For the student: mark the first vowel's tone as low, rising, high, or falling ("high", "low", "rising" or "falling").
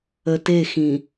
low